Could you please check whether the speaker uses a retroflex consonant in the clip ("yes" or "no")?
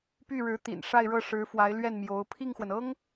yes